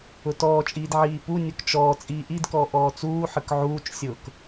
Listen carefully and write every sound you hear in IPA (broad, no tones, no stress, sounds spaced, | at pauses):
ʊ t ɔː t͡ʃʼ iː d ʕ iː p u nʲ ʊ k t͡ʃ ɔː t͡sʼ iː ʔ i d k ɔː ʔ ɔː t͡s uː ħ ə k ʕ uː t͡ʃ sʲ ʊː k